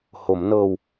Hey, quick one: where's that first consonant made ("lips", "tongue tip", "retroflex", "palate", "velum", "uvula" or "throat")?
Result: throat